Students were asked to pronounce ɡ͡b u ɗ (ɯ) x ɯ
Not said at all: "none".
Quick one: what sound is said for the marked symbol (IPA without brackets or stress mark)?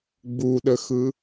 ə